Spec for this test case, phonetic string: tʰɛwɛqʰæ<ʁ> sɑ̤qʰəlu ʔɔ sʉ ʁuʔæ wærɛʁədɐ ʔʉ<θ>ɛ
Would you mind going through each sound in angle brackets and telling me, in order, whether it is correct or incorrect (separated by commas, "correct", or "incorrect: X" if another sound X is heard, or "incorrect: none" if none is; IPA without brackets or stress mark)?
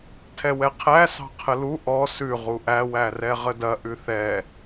incorrect: none, correct